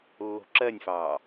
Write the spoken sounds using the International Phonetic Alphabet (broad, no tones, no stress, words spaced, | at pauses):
lːo̤ǁɜnʲfɑː